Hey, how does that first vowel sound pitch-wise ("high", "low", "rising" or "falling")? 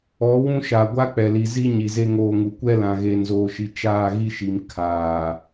rising